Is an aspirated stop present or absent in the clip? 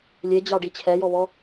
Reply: present